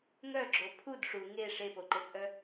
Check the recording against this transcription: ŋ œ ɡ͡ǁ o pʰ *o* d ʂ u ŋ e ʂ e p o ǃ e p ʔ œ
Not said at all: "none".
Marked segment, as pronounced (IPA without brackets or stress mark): u